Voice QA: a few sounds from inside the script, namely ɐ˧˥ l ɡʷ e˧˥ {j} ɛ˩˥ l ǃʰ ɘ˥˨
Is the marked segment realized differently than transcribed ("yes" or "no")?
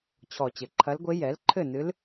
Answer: no